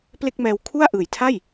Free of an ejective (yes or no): yes